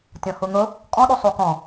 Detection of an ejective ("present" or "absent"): present